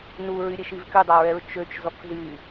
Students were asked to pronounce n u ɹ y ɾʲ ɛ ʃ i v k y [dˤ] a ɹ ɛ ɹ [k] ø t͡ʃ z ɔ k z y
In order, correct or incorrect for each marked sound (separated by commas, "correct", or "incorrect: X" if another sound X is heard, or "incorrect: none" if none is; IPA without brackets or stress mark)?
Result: correct, incorrect: t͡ʃ